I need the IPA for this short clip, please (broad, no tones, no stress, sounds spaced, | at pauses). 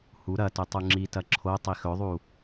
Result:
h u ɾ ɐ t ɵ tˤ u ŋ͡ǁ i t ɐ ǁʰ o tˤ i x ɵ ðˤ u